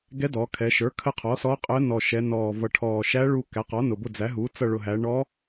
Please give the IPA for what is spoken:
ɡ ɛ˧˥ d ɔ˩˧ kʰ ɛ˩˧ ʃ ə˞˩˥ kʰ ə˦˨ qʰ ɔ˩˥ s ɔː˧˥ qʼ əː˧˥ n ɔː˨˩ ʃ ɛ˩˧ n ɔː˨˩ v ʌ˨˩ ʈʰ ɔː˨˩ ʃ æ˧˥ ɭ uː˦˨ k æ˩˥ q ɔ˩˥ n ʊ˨˩ b ʊ˦˨ d͡z æ˩˥ ɦ uː˩˥ t͡s ʌ˦˨ ɭ ʊ˨˩ ɦ æ˩˧ ɳ ɔː˧˥

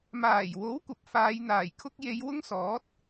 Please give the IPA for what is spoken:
m aː˨˩ j w o˨˥ w kʷ ɐ˨ p̚ f aː˨˧ j n̪ aː˨˩ j kʰ ʊ˥ k̚ j e˨˧ j w ʊ˥ ŋ s ɔː˨˥ t̚

